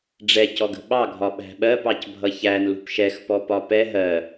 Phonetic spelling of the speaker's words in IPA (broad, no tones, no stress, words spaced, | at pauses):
ɖ͡ʐɛcɔɡə̤ ɓɑɡʱɒ ɓæ̤ɓɜ pɑcbʱʌçæn lṳpʃɛxpɔ pɒpɛ ɦɜ